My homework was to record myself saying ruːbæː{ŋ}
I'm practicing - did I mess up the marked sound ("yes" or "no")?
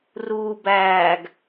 yes